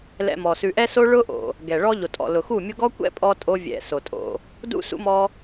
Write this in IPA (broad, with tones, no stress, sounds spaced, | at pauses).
l ɛ̰˧ m ɔ˨ s ʉ˧ ʔ ɛ˦ s o˦ ɭ ʊ˦ ʔ o̰˨ | ɡ ɛ˨ ɭ ɔ˦ ʎ o˨ tʼ ɔ̰˨ l ʊ˨ x u˦˨ mʲ ʊ˦ ɡ ɔ˦ kʷ ɛ̰˦ pʼ ɔ˧ tʼ o˦ vʲ ɛ̰˧ s o˨ tʼ o̰˧ | d ṵ˦ s ṵ˦ m ɔ˦